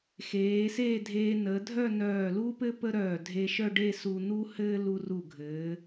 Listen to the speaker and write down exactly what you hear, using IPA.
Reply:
x eː˩˧ s eː˥˧ dʱ eː˧ n əː˩˧ dʱ œ˥˧ n œː˧˩ l u˥ p ɘ˥ p ə˥ ɾ œː˧˩ dʱ e˧ ʃ œ˥˧ ɖ e˥˧ s u˧ n̪ u˥ h ɘː˥ l u˧ r u˧˩ ɡʱ ɘː˩˧

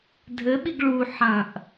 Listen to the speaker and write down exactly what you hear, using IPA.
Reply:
dʱ ɘ ɓ i ɡ ɭ u ħ ɐ̃ ʔ

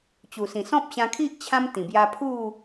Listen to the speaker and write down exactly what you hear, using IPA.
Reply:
t͡ɕ u˨˩ s ĩ˨˩ s ɔ̃˦ p̚ ɕ ã˧ kʰ i˦ ʔ t͡ɕʰ ã˧ m t̪ ĩ˨˩ b j a˧ pʰ u˥˧

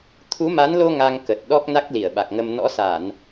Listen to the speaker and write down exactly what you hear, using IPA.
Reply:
t̪ʰ u˨˦ m a˨˦ n l o˧ ŋ a˧ ŋ k ə˨˩ t̚ ɗ ɔ˦˥ k̚ n a˦˥ k̚ l i˧˩ ə̯ ɓ a˨˩ k̚ ŋ ə˧ m n ɔ̰˧˥ s a˧˩˨ n

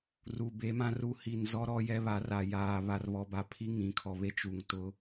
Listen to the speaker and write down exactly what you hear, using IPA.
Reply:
r u˨ b e˨˦ m ã˦ r u˦ h i˨ n z ɔ˦ ɾ ɔ˦ j ɛ˦ β a˨˦ r a˨ j aː˨ β a˨ r β ɔ˨ b a˨ pʰ i˦ ŋ ĩ˨˦ kʰ ɔ˨ β e˦ t͡ʃ u˨ ŋ t ʊ˦

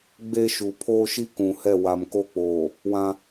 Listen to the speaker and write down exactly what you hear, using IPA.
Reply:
ɡ͡b e˦ ʃ u˨ pʰ oː˦ ʃ i˦ k ũ˨ h ɛ˦˨ w a˨ m k o˦ k͡p oː˨ | w ã˦

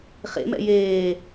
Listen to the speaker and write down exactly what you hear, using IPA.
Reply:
χ ḛ m ɛ̰ j eː

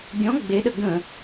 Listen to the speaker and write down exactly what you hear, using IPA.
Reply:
ɡʲ ɔ̃ ɡ͡b e ɗ ə ɡ ə̃

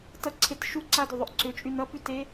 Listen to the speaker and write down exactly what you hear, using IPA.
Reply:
t ʌ ǀʰ e t ʃ u ǀ a d ʏ ðˤ ʏ ʔ ǀ ʏ t͡ʃʼ y n ʌ p y t e

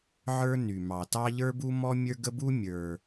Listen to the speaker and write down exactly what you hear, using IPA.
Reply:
ʕ ə˞˦ n y˩ m ɑ˩ t ɑ˦ ʎ ə˞˦ b u˦ m ɔ˦ mʲ ə˞˦ ɡ ə˦ b u˦ mʲ ə˞˩

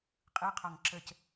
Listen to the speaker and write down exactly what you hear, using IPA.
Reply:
qʼ ɯ qʰ ɔ ŋ ǁ ə c

